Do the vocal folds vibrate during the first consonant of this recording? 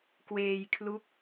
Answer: no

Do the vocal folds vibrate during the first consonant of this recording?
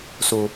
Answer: no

